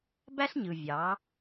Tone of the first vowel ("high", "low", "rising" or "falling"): high